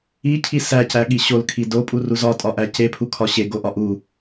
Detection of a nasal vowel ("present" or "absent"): absent